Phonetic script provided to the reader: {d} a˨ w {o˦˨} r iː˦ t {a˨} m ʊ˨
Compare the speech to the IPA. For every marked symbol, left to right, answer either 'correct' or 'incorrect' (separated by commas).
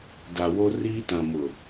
correct, incorrect, incorrect